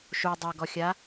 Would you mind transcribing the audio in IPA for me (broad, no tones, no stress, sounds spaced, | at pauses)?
ʃ u dˤ ɐ ɡ ɔ xʲ a